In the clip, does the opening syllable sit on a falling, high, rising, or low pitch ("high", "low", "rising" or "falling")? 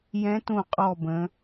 rising